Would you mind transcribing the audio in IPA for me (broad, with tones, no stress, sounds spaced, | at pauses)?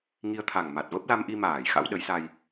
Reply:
ŋ i˧ ə̯ t̪ʰ a˨˩ ŋ m a˨˩ t̚ v ə˦˥ p̚ l a˧ m ʔ i˧ m aː˧˩ j x a̰˧˥ w ɗ ə˨˦ j s a˧ j